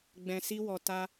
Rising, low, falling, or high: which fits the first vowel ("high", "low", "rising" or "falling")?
low